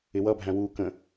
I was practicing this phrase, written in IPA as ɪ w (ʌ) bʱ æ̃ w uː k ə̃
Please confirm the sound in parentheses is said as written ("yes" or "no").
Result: yes